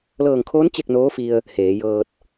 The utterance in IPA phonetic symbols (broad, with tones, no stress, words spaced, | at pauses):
lɤː˧˩ŋkʰoː˧˥n t͡ɕe˥˨k̚noː˧˥fi˧ə̯ | heː˩˧jɤː˧t̚